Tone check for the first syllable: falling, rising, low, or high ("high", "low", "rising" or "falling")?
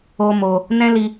high